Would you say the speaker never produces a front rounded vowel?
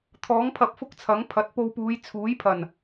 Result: yes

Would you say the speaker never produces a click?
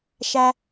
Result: yes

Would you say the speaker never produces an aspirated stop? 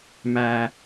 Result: yes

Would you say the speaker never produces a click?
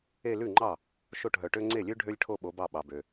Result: no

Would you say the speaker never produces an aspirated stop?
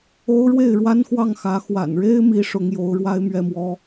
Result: yes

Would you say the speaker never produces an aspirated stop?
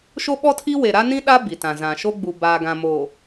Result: no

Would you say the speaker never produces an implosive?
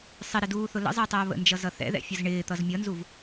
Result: yes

